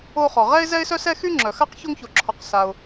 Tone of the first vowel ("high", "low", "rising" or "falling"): high